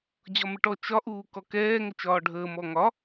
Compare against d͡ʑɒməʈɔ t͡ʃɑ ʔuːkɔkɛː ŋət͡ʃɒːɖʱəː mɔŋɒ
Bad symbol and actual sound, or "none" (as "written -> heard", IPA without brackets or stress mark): ɑ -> ɒ